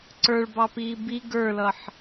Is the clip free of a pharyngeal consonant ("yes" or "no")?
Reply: no